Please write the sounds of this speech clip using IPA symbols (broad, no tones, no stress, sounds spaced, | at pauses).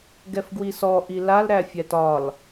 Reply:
ɡ ɛ f ɡ w i s ɔ ʔ i l a l ɾ æ fʲ æ t ɒ l